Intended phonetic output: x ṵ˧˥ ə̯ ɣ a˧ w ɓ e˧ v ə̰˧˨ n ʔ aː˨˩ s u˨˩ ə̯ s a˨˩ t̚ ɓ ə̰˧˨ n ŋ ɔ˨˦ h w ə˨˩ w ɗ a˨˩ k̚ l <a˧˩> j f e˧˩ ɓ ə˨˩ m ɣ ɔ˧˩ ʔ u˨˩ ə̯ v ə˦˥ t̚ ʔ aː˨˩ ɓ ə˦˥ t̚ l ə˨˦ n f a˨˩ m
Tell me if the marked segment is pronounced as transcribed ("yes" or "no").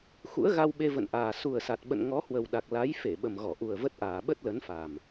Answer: no